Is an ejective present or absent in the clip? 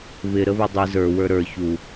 absent